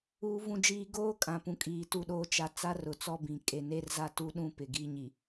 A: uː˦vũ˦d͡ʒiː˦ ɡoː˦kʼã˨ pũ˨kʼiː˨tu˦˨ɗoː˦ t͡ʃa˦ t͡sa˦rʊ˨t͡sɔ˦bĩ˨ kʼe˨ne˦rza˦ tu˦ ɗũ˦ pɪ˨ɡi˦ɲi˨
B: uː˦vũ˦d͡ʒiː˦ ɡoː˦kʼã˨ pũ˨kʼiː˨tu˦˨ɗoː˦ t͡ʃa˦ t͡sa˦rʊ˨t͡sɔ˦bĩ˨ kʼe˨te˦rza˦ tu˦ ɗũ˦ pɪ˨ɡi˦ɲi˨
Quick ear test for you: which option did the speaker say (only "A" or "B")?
A